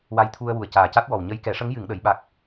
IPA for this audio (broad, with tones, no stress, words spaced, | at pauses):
wa˧jt̪ʰu˧ə̯wu˨˩ə̯ caː˨˩ca˦˥t̚wɔ˨˩w ɲə˧jkɛ˨˩˦ʂə˧˥ŋ jɨ˨˩˨ŋɗə˨˩˨jɓa˨˩k̚